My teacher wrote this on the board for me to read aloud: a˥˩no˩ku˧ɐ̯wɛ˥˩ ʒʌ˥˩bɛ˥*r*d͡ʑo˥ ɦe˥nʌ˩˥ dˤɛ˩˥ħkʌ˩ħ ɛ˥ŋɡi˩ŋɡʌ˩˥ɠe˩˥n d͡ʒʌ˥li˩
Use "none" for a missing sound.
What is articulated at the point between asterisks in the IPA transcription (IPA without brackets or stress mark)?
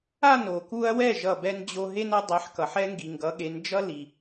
n